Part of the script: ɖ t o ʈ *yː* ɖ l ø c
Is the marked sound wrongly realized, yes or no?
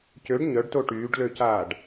no